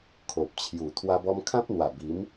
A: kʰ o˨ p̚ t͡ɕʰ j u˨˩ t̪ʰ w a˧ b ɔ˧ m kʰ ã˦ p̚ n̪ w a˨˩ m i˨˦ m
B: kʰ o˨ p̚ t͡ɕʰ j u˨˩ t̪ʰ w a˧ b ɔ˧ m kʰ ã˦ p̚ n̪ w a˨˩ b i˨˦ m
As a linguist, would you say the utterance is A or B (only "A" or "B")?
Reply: B